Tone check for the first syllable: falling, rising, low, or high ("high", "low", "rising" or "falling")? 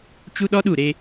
high